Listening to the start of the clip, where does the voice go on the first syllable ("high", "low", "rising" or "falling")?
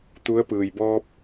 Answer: rising